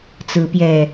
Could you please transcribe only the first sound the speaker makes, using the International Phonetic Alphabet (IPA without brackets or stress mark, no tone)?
t͡s